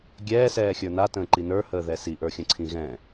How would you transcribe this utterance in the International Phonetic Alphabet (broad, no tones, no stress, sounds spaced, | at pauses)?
ɡʲ ɛː s ɛː xʲ ə˞ n a t ə̃ː ǃ i n ə˞ h əː ð ɛ s i ʔ ə˞ xʲ ə̃ ǀʰ ĩ ɣ ɛ̃